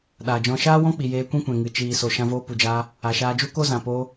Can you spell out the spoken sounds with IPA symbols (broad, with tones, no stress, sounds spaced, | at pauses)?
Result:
ɗ aː˨ d͡ʒ ɔ̃˧ ʃ aː˦ w ɔ̃˦ k͡p i˨ j eː˧ kʷ ɛ̃˦ kʷ ɛ̃˨ ŋ ɨ˨ t͡ʃ iː˨ s o˨ ʃ ã˧ v oː˧ p u˨ d͡ʒ aː˧ | a˨ ʃ aː˧ d͡ʒ u˦ k o˦ z ã˨ p oː˧